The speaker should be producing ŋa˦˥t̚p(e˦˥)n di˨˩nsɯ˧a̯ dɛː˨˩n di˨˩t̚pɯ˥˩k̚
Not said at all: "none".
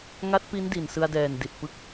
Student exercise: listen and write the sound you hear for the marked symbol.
i˦˥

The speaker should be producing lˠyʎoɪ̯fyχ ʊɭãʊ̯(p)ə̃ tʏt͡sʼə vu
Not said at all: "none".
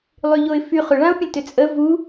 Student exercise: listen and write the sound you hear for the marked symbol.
pʲ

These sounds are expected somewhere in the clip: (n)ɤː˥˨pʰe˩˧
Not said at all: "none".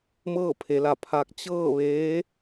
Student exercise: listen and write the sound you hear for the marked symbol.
m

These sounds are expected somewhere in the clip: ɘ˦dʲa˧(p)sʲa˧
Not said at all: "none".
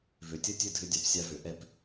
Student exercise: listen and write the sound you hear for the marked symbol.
p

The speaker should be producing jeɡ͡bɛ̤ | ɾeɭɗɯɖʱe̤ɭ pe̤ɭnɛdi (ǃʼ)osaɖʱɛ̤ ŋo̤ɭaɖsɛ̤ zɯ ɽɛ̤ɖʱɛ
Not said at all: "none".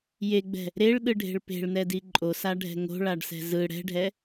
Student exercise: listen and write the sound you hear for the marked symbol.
ǃʼ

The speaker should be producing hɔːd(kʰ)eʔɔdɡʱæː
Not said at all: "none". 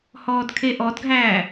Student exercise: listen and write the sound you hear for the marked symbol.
kʰ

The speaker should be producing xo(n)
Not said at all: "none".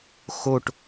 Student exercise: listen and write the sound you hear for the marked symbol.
ʈ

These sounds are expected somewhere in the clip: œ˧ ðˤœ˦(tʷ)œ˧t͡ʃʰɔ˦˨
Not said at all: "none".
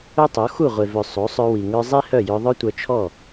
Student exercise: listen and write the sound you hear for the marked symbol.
tʷ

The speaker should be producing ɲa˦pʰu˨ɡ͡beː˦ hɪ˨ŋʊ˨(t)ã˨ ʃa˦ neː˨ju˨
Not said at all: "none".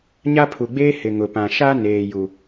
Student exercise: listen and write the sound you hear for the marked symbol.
p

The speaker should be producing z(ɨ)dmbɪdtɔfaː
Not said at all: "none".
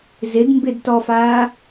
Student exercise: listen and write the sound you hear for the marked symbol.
ɪ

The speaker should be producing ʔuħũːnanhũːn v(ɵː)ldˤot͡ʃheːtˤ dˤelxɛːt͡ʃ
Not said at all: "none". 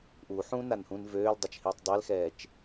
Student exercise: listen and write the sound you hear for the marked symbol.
øː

